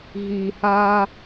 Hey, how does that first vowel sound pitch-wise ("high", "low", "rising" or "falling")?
low